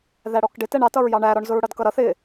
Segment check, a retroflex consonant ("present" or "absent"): present